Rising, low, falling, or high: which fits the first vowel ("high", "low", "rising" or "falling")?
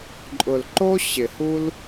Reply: low